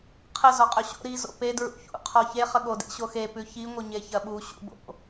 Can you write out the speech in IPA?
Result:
qʰə zɔqʼɵɕo̰ ɾi zo̰pe dɹṵçṵ qʰɔçe χəɠo dḛɕoxe pʉçi ŋʷəɲeçɐɓu ɕṵbo̰

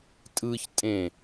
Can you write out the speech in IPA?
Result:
tʼɯçtʼẽ

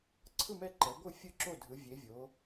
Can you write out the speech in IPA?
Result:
ǀʰɯ˦˨mɛ˦˨ǃɛ˩˧ɡʷɯ˦˨ fʲɯ˦˨ǁo˦˨dʱɯ˩˧ vʲe˩˧vʲo˩˧

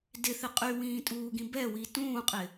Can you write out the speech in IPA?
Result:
dɪθɪ qʼywĩːtʼuːɡĩ bɛwi tũːqʼɪ

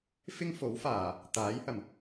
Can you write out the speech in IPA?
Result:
fɪ˥ŋfo˨˥wfaː˨˩ | t̪aː˨˥jhɐ˨˩m

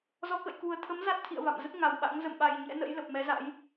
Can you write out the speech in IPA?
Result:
zɔ˨˦kə̰˧˨j ku˨˩ə̯t̪ʰə˨˦m za˦˥t̚t̪ʰḭ˧˨ə̯ va̰˧˨mzə˦˥t̚ŋa˨˩w ɓa̰˧˥ŋ zə̰˧˨mɓa˨˩j ɲɛ̰˧˥nə̰˧˥j lə˨˩p̚mɛ˨˦za̰˧˥j

